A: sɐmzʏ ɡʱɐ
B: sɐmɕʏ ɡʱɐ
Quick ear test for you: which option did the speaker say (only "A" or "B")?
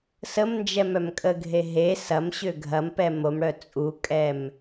B